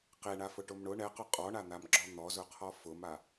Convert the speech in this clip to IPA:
qeɳafʊʈʊm ɳʊ ɳɛqʊ qʼɔɳan̪amɡ͡ǁɔ n̪ɔzʊqʰɔ fʊma

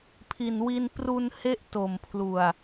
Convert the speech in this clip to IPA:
pʰi˨˩nwi˧n pru˧nhe˦˥ʔ to˨˩mpʰlu˨˩a̯

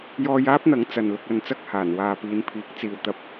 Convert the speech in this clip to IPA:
jɔː˧jaː˥p̚n̪ɐ˨˥ŋ t͡sɐ˨n lʊ˧k̚ɐ˧nt͡sɐ˥k̚haː˨˩n waː˨piː˨˧npʰiː˨˥k̚ t͡siː˨wt̪ɐ˧p̚

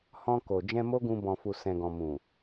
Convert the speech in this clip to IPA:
hɔ̃˧ko˨ d͡ʒɛ̃˧mo˦ɡũ˧ bɔ̃˨fu˨ sɛ̃˨ɡɔ̃˨mũ˨

